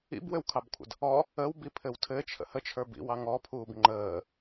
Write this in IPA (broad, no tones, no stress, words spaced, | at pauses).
ḭbwɘwkʰɑbkʷʰə̰d | ɔ | əwbipʰɘw tʰɘt͡ʃʰə̰ hət͡ʃʰə˞bḭwɑ ŋɔpʰuːb ŋ͡ǃəː